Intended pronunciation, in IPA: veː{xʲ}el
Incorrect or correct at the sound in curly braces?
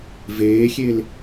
correct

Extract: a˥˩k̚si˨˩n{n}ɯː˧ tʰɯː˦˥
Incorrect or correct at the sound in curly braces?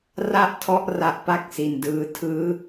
incorrect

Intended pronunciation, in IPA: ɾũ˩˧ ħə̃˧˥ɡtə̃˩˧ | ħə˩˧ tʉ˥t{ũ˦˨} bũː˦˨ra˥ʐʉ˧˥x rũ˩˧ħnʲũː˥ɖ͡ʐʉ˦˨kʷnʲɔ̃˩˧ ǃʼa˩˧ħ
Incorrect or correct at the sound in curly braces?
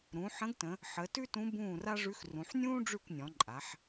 incorrect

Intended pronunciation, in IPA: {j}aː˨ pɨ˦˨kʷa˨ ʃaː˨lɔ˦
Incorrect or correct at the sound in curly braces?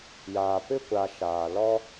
correct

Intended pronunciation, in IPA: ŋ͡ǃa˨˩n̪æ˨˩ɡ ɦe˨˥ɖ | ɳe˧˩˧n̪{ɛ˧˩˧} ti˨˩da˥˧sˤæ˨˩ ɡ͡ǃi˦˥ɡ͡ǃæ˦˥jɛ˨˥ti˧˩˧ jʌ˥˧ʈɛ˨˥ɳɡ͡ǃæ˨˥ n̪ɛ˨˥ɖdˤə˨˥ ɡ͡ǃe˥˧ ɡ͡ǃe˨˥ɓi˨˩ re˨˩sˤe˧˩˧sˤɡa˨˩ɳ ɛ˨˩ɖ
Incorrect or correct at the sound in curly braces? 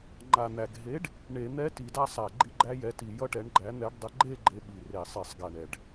incorrect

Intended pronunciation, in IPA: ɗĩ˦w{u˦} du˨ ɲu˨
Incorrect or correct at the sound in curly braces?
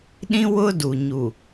incorrect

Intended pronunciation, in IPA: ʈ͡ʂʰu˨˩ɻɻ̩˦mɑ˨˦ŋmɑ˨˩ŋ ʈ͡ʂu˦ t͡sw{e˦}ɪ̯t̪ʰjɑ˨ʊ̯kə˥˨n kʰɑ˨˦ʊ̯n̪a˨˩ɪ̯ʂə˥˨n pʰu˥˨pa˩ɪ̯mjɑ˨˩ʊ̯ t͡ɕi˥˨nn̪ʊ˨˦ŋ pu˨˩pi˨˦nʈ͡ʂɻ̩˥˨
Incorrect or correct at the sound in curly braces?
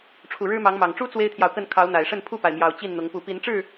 correct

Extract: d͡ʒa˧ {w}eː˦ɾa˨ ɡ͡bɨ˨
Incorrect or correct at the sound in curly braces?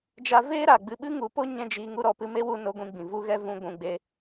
incorrect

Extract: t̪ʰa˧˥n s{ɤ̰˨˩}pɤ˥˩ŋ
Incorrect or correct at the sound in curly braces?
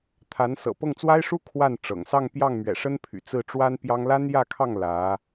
correct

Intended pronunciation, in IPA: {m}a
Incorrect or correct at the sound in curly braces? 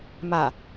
correct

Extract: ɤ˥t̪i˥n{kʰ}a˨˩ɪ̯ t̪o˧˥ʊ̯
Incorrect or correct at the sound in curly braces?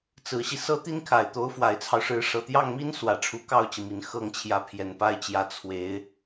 correct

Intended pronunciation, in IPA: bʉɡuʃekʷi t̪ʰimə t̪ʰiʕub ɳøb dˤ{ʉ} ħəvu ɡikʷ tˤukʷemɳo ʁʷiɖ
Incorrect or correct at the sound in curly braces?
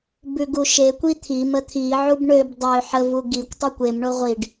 incorrect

